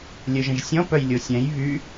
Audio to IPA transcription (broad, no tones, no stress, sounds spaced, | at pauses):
lʲ œ ʒ ə̃ ʒ sʲ ɔ̃ p œ j lʲ o sʲ ɛ̃ j β y